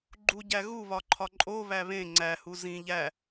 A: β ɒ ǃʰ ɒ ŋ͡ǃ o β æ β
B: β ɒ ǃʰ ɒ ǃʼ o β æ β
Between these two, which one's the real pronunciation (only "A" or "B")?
B